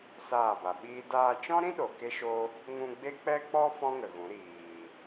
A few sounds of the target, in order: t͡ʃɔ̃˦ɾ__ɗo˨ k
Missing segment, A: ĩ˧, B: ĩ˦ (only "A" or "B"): B